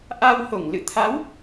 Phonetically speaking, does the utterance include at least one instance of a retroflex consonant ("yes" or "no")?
no